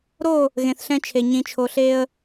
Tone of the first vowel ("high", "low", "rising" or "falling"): falling